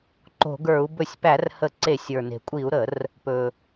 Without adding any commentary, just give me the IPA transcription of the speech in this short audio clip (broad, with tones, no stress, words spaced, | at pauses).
ǃo̤˧˩˧ɡə˞˧˩˧u̯ bɵ˧˩˧sʲpæ˧˩˧rhə˧˩˧ ǀe˧˩˧sʲ ə˞˩ne̤˩kʷʼi˧˩˧u̯ɾə˧˩˧r | pɵ˩